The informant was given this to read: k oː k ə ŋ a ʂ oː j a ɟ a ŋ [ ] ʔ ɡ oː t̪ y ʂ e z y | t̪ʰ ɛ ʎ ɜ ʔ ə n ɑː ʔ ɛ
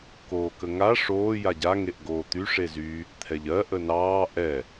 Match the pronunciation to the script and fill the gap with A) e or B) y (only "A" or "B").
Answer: A